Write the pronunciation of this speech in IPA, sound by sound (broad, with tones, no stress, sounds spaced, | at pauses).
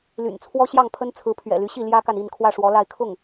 l y̰˨˩ n t͡sʰ w ɔ˥ ɕ j ɑ˥˩ ŋ pʰ ə˥ n t͡sʰ ɹ̩˧˥ pʰ ɥ ɛ̰˨˩ l y˧˥ ɕ i˥˩ l j ä˥ k a˨ n i˥˧ n kʰ w ä˥˩ ʂ w ɔ˧˥ l a˥˧ ɪ̯ kʰ ʊ˥˩ ŋ